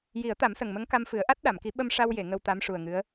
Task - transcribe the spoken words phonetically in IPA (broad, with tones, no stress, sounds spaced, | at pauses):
j i˨˩˦ ə̯ t̪ a˨˩˦ m s ə˨˩ ŋ m ə˧˥ ŋ k a˧ m f ɨ˨˩˦ ə̯ ʔ a˦˥ t̚ ɗ a˨˩˨ m k i˨˩˦ ɓ ə˧ m ʂ a˧ w j e˨˩˨ ŋ ə˧ w t̪ a˧˥ m ʂ u˨˩ ə̯ ŋ ɨ˧˥ ə̯